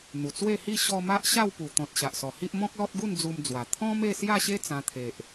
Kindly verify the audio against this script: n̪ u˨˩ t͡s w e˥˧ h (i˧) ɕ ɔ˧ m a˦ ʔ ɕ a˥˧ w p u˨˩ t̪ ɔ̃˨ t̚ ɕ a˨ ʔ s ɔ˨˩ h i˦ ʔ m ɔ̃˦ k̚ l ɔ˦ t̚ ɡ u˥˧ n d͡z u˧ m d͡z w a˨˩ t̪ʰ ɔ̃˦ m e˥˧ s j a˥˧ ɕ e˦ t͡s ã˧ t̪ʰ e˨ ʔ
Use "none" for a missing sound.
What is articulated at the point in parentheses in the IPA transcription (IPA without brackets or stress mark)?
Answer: i˥˧